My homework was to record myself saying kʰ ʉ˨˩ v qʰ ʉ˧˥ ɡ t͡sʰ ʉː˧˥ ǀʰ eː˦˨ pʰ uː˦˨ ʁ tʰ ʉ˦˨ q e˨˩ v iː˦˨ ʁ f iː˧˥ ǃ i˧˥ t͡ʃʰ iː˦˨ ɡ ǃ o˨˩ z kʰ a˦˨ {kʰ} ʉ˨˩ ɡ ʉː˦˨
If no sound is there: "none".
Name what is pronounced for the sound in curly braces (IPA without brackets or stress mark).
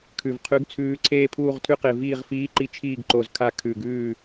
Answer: kʰ